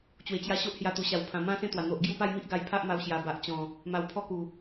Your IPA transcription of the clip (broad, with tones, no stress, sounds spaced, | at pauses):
t͡ɕ w e˨˩ t͡ɕ j a˧ ɕ o˦ ʔ h j a˧ t̪ u˨˩ ɕ a˨˩ w pʰ ã˨˩ m ã˦ s ẽ˥˧ t̪ w a˨˩ n̪ o˨ ʔ ɡ j u˥˧ p a˥˧ j m i˦ ʔ ɡ a˧ j pʰ a˦ ʔ m a˧ w ɕ j a˨˩ b a˨ ʔ t͡ɕ ɔ̃˨˩ | m a˧ w pʰ ɔ˦ k u˨˩